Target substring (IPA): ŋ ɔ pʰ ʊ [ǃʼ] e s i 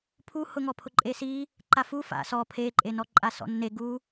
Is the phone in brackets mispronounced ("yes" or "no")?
no